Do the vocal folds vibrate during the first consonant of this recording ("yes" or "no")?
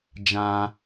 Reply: yes